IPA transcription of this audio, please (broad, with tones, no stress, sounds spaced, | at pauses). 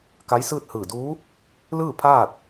k a˧˥ j s ɯː˥˨ t̚ h ɯː˧˩ d uː˧˥ | l ɯː˥˨ pʰ aː˥˨ t̚